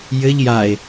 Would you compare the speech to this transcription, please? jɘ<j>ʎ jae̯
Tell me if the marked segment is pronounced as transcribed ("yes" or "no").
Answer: no